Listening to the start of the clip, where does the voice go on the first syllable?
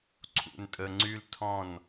low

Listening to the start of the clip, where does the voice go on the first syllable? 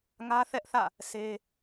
high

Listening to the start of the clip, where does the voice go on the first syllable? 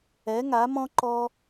rising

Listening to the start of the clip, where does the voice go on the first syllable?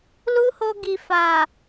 high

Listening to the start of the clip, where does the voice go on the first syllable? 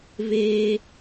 high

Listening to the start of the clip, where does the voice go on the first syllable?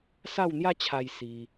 falling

